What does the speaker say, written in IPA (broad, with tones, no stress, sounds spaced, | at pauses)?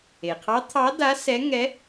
e˩ qʰ ɑ˧˥ t̪ʰ ɑ˧˥ d a˧˥ s ɛ˧˥ ŋ ɛ˧˥